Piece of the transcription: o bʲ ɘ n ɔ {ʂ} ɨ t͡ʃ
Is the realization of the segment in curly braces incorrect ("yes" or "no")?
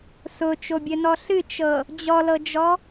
yes